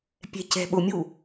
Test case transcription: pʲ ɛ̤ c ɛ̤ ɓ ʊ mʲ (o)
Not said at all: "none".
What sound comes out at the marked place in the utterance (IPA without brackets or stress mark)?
u